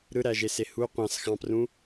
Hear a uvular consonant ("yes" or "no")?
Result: yes